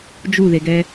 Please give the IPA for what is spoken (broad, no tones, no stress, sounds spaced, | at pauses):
d͡ʒ u ð e ɡ ɛ